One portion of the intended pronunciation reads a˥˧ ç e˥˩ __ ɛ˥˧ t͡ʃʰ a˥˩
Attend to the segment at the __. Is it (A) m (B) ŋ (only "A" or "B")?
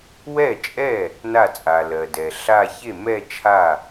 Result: A